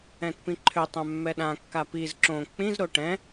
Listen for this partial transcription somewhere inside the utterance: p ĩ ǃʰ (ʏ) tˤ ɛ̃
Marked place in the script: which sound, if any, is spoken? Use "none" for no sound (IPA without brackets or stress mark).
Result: ʏ